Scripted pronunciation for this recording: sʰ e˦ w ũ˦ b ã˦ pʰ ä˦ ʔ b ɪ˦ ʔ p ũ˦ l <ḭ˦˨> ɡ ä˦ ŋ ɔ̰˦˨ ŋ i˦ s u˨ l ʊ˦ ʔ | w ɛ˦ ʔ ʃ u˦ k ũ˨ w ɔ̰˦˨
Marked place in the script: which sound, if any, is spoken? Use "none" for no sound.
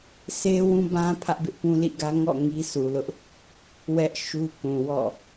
ḭ˦˨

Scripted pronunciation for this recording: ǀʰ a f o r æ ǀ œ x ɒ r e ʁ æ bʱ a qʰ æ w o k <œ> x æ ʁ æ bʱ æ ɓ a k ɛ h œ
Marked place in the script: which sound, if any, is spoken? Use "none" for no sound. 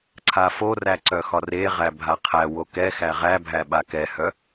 ɛ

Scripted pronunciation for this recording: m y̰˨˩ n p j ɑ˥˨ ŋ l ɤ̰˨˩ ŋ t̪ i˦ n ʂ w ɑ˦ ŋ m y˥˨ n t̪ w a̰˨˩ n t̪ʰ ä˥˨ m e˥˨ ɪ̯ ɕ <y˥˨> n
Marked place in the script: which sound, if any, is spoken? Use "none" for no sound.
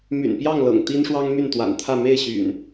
y̰˨˩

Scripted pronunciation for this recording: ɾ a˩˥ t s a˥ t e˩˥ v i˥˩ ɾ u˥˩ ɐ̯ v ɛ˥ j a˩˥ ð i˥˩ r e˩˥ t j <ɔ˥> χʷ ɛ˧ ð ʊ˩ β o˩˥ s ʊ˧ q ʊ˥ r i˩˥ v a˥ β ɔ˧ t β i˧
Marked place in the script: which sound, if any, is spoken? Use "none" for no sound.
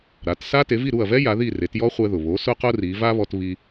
ɔ˥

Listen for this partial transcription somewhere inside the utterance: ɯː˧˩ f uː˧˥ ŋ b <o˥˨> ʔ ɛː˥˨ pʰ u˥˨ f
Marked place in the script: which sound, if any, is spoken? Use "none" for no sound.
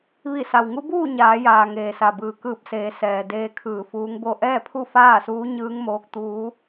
o˥˨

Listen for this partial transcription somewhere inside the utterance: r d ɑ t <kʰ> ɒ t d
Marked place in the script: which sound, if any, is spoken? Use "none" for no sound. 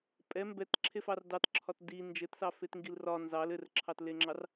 ǁʰ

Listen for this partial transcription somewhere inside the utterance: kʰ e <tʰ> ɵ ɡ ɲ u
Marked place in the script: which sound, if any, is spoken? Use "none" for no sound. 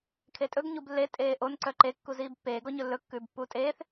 tʼ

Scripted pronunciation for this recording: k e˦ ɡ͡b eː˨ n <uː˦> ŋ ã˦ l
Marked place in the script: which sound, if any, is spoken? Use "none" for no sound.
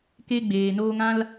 oː˦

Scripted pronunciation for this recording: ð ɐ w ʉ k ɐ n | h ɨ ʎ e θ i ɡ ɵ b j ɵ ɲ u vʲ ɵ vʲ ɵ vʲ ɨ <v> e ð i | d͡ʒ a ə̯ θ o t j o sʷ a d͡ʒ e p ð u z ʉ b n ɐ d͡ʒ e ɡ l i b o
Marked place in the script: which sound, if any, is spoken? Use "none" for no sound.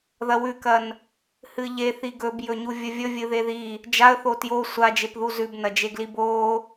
ð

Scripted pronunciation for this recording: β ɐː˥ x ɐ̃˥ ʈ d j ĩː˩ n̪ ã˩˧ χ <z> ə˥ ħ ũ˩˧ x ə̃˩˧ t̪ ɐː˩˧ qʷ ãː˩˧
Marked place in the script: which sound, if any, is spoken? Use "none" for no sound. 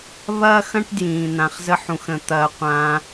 z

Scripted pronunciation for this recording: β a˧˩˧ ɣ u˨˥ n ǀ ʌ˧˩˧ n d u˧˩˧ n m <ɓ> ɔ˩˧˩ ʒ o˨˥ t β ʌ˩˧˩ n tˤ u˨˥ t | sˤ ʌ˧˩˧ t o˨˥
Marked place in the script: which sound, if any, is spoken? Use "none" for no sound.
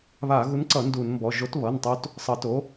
b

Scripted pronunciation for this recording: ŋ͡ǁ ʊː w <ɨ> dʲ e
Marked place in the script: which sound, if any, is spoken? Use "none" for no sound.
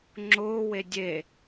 e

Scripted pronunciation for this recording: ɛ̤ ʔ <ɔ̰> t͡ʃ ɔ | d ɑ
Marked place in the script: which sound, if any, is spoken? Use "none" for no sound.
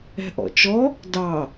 ɔ̰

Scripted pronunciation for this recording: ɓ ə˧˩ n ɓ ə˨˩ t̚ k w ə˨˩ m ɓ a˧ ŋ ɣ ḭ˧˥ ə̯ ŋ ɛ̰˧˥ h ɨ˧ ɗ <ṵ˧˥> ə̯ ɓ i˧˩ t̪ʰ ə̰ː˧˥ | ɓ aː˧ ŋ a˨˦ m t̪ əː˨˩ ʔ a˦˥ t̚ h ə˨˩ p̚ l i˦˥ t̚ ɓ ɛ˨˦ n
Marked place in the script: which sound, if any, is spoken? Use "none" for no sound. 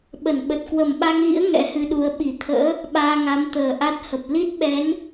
u˨˦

